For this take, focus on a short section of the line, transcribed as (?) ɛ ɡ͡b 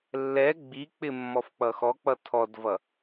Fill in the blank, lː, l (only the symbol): lː